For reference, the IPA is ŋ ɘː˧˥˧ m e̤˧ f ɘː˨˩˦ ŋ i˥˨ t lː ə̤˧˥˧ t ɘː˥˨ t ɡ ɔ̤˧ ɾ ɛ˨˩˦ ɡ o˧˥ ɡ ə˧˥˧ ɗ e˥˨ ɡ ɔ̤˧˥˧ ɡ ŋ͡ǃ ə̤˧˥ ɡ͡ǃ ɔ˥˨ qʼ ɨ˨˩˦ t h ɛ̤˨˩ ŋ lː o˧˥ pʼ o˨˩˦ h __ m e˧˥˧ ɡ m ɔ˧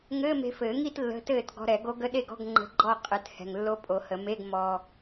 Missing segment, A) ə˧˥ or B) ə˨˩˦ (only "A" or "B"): B